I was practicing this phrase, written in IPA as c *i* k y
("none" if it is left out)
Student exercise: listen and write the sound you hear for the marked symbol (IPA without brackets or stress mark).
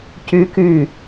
y